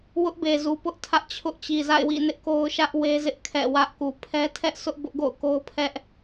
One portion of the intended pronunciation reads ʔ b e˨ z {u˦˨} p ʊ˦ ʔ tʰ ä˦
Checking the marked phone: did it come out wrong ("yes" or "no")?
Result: yes